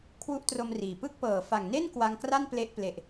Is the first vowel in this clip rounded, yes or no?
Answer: yes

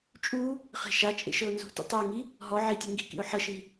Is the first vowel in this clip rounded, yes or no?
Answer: yes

